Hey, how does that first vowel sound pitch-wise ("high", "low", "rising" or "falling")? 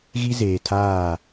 high